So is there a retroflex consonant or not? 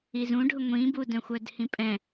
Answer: yes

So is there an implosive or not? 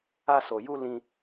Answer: no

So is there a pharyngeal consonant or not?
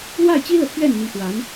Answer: no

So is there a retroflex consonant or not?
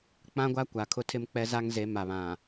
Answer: no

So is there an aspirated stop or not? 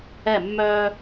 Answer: no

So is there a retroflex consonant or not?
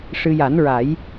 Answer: yes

